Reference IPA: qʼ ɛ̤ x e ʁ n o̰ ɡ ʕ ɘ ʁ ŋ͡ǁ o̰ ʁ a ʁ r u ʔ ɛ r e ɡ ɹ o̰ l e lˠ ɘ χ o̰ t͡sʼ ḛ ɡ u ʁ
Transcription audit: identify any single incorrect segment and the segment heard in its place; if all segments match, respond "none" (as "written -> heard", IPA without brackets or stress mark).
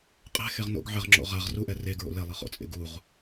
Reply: none